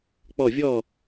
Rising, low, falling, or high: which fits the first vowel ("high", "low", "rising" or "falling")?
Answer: falling